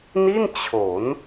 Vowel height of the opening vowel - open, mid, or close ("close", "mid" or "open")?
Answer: close